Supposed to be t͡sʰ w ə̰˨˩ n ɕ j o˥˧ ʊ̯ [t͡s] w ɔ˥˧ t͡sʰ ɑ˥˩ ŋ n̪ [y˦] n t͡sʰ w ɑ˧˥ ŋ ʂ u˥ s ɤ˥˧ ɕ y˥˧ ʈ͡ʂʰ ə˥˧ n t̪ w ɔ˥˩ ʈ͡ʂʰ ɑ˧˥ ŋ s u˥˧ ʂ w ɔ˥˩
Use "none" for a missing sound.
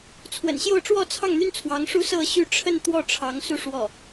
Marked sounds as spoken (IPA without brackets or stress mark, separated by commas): ʈ͡ʂ, y˥